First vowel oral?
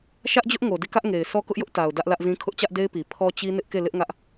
yes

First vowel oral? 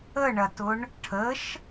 yes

